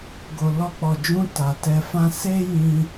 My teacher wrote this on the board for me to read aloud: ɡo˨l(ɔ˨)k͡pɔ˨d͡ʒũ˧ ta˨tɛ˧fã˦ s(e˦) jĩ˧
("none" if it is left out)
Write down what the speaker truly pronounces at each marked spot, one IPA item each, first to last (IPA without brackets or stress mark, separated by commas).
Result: ɔ˧, e˦